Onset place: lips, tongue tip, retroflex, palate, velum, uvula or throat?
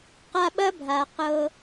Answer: uvula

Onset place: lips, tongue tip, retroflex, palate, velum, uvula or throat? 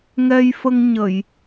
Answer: velum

